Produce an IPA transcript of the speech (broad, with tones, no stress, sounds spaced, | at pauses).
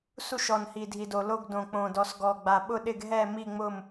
s u˥˨ ʃ ɔ˨˩ n h i˨˩ dʱ i˨˩ d o˨˩ l o˥˨ ɡ d õ˨˩ k͡p õ˨˩ d ɔ˨˩ s ɡ ɔ˨˩ ɡ͡b a˨˩ ɓ ʊ˥˨ ɗ ɪ˥˨ ɡ ɦ ɛ˥˨ m i˥˨ ŋ͡m ʊ˥˨ m